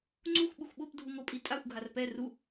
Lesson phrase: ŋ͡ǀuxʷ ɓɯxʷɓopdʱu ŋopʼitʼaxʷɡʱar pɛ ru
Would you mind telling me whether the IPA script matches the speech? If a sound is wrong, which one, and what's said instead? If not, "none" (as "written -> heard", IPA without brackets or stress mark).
none